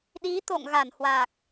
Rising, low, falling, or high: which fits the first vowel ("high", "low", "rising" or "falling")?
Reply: rising